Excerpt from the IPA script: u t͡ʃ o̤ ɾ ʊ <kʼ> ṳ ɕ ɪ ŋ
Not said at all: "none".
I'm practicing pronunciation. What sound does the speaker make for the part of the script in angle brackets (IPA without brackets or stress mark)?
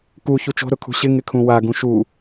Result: kʰ